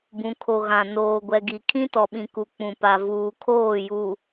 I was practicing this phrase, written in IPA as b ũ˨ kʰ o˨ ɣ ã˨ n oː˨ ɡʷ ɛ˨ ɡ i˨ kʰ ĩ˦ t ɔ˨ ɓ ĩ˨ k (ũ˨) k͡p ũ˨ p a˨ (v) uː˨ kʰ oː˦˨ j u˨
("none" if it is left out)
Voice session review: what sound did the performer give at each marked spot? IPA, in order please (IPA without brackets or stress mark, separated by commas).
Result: u˨, v